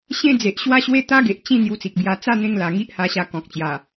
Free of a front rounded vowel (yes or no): yes